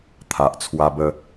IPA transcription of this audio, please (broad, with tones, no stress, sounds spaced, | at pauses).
t̪ʰ a˨ ʔ t͡sʰ w a˧ b ə˧